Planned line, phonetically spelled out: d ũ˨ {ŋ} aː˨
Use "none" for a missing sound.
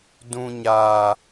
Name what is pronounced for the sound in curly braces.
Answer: ɲ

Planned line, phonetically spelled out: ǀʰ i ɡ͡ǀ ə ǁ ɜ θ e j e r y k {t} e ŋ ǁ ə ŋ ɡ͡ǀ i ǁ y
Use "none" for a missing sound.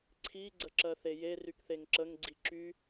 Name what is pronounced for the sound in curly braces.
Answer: θ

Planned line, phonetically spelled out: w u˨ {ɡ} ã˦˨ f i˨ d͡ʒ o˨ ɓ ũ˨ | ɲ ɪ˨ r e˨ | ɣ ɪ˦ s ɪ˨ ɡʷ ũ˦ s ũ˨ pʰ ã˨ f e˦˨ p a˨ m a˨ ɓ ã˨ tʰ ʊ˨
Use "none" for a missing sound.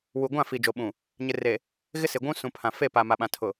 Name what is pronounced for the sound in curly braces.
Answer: ɡʷ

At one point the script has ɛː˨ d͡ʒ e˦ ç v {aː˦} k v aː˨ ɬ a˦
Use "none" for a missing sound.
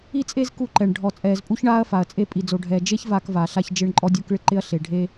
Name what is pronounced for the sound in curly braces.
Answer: aː˦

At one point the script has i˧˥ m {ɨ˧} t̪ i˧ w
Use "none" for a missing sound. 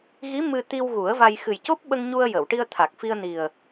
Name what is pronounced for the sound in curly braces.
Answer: ɨ˧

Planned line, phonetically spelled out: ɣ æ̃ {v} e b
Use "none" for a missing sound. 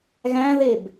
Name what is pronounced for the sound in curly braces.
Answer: ð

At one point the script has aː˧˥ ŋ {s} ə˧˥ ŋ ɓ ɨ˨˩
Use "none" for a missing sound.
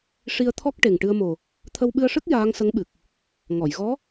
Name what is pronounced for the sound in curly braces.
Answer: s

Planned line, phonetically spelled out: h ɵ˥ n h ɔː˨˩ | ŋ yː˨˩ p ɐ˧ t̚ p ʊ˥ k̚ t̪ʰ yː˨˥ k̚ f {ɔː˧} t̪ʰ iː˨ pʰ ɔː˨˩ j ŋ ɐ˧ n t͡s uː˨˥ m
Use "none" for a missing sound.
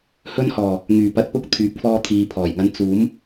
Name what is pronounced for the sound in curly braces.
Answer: ɔː˧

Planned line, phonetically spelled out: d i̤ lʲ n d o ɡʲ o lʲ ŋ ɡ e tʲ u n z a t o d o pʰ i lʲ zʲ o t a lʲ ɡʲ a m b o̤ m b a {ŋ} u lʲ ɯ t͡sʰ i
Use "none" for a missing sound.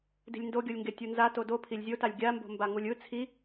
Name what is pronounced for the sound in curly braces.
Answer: ŋ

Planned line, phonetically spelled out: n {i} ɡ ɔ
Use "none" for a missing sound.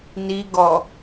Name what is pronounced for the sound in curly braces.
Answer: i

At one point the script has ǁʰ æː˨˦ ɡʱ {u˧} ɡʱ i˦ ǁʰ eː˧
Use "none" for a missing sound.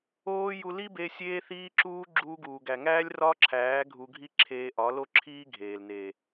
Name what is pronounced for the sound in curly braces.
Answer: u˧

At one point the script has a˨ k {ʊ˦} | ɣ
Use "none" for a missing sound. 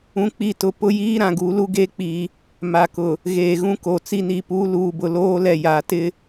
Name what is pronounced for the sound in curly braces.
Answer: ʊ˨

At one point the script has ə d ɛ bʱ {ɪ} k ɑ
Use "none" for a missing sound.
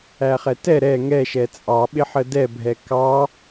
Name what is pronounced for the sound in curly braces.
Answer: ɛ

